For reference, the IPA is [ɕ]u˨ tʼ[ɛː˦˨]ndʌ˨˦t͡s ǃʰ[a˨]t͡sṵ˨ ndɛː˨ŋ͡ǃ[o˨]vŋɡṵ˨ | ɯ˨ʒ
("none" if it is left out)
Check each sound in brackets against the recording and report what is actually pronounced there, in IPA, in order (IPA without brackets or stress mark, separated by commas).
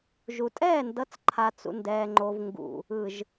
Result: ʒ, ɛː˦˨, a˨, o˨